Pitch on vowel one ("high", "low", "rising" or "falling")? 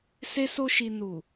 high